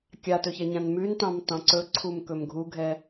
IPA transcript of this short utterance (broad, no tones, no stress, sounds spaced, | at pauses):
kʲ a t ɵ ç ɛ ɲ ã n m ʉ n t ɑ̃ m t ɑ̃ ǀ ɵ ǀʰ u m k ɵ m ɡʱ u ɡʱ ɛ